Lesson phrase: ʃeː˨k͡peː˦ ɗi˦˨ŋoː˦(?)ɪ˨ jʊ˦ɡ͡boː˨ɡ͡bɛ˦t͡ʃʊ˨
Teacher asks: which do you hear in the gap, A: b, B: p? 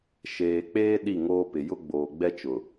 B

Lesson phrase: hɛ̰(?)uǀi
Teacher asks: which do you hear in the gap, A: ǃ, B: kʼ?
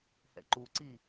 A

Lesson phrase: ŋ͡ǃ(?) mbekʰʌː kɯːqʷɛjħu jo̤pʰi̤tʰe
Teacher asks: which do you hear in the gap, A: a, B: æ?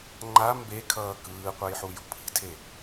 A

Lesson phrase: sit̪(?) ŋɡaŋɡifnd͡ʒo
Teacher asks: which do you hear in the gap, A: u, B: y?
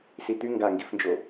B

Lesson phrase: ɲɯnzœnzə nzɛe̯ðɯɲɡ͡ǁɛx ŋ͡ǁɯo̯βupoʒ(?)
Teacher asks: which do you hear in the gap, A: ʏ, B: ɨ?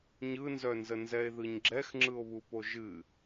B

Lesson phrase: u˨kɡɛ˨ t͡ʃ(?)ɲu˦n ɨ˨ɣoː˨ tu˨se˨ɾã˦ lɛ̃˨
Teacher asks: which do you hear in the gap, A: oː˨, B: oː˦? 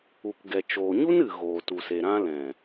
A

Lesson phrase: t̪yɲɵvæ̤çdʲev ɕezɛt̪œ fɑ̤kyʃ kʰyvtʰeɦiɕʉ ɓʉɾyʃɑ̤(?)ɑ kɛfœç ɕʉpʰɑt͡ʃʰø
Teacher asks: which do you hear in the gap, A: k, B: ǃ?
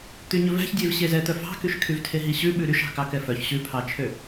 A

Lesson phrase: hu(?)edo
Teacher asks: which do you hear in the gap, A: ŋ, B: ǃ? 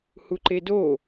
B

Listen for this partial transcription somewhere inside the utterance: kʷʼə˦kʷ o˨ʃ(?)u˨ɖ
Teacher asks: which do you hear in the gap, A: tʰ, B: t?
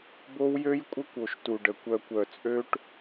B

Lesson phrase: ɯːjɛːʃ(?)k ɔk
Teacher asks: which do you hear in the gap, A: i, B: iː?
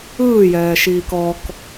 B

